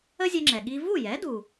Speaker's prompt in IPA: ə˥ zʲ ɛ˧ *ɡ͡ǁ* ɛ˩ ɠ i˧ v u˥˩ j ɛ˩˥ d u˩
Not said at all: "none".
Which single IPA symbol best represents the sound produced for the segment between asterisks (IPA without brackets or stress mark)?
ŋ͡ǁ